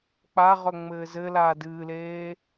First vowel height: low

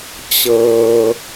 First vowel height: mid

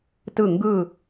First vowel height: high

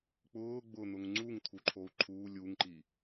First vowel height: high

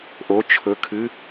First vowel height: mid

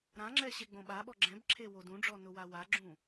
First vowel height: low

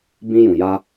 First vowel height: high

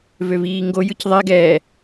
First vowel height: mid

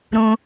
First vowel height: high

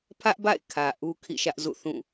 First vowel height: low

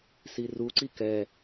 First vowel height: high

